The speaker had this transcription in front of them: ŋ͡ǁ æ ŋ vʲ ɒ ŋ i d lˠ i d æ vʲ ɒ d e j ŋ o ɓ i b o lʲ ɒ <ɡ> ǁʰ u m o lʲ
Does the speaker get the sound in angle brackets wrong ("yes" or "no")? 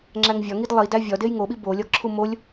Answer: no